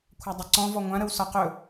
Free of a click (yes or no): no